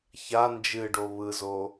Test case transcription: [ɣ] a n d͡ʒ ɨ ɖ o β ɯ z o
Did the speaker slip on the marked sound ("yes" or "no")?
yes